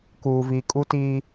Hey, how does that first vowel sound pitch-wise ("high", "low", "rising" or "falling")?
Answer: low